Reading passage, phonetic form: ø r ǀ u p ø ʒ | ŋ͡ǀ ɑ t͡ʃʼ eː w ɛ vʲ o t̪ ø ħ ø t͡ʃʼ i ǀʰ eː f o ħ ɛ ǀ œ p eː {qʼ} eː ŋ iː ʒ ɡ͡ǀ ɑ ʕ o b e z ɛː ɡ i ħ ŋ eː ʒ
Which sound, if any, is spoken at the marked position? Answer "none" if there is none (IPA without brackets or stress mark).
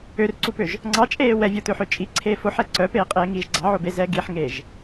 qʼ